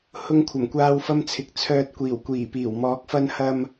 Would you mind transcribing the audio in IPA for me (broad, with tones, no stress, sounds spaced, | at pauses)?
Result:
h ʊ˧ ŋ kʷʰ ɐ˨˩ m kʷ aː˧ w f ɐ˧ m t͡sʰ ɪ˨ k̚ t͡sʰ œː˨ t̚ kʷ iː˨˩ w kʷ iː˨˩ p iː˨˩ w m ɔː˨˥ k̚ f ɐ˧ n h ɐ˧ m